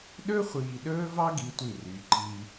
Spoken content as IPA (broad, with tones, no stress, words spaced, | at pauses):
ɗɵ˦χʷiː˨ɗɵː˦vɑ˦ ɡi˦tʷi˦˨ryː˨ǃiː˦